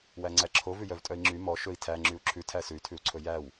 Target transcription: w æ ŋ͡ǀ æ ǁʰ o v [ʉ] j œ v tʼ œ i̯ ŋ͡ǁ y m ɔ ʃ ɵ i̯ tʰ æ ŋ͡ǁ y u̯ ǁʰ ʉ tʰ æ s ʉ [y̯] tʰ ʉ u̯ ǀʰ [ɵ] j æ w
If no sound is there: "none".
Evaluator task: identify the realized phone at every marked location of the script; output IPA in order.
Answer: ʉ, y̯, ɵ

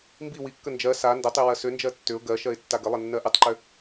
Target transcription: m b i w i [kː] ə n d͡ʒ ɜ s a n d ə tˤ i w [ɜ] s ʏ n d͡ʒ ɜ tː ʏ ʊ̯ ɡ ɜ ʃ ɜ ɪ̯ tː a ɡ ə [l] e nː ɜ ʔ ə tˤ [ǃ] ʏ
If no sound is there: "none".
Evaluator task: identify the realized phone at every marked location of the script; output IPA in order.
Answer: kː, ɜ, lˠ, ǃ

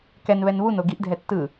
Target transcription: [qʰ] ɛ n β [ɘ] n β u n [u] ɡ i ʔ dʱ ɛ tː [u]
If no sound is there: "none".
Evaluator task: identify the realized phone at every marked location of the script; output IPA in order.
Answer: k, ɛ, o, ɯ

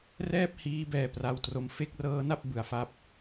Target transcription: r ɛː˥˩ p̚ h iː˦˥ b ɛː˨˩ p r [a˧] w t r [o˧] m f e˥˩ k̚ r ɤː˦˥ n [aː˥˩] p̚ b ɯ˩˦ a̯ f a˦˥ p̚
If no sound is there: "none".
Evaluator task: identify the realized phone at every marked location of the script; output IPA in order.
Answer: a˧, o˧, a˥˩

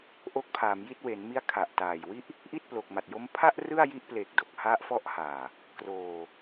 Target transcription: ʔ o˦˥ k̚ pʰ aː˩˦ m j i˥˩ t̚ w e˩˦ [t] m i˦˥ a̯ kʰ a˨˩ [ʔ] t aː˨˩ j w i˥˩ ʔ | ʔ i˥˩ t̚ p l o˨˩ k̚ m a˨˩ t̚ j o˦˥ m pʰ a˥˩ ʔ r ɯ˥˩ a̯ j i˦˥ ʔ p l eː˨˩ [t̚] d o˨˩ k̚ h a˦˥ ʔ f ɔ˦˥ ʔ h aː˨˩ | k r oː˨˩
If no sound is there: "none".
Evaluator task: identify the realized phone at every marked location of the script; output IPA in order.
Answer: n, ʔ, k̚

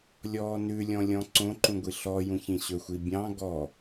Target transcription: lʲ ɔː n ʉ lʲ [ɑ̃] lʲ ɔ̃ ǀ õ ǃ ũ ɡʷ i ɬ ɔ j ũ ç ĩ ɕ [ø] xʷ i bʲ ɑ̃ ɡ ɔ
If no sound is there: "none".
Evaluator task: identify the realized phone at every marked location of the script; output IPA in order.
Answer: ɔ̃, ɵ

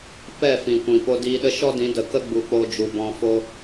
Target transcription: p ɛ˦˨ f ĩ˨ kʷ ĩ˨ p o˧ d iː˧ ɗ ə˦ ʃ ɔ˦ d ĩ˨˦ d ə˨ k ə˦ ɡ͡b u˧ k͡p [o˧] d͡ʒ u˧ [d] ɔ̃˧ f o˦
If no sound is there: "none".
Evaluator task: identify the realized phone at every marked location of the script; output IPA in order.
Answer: o˦, b

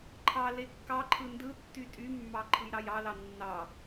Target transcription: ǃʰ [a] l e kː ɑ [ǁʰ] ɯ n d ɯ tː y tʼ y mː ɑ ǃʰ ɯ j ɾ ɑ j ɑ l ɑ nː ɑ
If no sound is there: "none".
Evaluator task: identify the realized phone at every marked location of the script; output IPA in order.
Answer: ɑ, ǃʰ

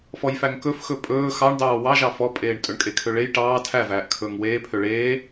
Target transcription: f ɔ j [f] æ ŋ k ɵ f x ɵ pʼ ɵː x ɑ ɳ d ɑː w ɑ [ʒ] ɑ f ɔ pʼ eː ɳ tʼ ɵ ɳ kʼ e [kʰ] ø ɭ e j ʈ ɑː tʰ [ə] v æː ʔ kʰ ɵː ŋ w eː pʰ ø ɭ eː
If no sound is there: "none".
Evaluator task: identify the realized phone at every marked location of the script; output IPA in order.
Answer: f, ʒ, kʰ, æ

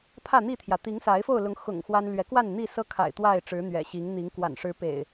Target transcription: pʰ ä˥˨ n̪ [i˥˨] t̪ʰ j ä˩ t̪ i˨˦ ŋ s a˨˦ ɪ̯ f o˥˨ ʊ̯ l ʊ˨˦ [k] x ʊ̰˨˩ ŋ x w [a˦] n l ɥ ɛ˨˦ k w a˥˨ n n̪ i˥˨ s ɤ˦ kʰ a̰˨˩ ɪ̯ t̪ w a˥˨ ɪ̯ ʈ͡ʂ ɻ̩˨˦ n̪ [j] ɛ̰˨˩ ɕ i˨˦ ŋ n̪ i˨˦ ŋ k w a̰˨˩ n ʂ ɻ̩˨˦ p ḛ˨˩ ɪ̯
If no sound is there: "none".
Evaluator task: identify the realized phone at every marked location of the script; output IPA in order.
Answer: i˥˨, ŋ, a˦, ɥ

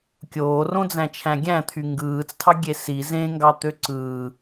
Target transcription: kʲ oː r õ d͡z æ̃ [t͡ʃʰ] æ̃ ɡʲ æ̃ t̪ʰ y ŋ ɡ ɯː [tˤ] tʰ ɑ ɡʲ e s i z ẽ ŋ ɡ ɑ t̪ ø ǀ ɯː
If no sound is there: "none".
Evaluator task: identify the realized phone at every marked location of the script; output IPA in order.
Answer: t͡ʃʰ, t͡s

